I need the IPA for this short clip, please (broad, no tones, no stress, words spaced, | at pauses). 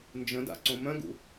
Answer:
nd͡ʒə̃da̰ ǀõmœ̃ɡṵ